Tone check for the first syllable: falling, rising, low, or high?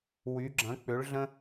rising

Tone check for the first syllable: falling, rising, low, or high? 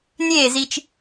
falling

